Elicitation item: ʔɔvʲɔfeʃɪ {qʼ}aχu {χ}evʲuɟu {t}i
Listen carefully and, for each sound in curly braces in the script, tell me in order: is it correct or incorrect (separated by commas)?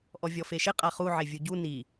correct, incorrect, incorrect